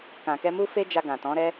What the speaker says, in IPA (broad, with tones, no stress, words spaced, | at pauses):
kã˨kɛ˧mu˦fe˦ d͡ʒa˧ɡã˨tɔ̃˨˦ ɾɛ˦